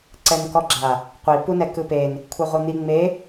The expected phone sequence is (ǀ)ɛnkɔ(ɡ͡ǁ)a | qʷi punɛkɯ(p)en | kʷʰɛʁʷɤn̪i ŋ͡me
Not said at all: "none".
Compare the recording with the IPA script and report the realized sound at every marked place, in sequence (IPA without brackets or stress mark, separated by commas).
ǀ, ɡ͡ǁ, p